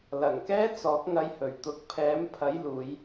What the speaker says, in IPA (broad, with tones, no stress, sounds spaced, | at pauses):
l ɐ˨˩ ŋ k ɛː˥ t͡s ɔː˨˥ k̚ ŋ ɐ˧ j h ɵ˨˩ ɥ t̪ ʊ˨ k̚ pʰ ɛː˨˥ m pʰ ɐ˨˥ j l uː˨˧ j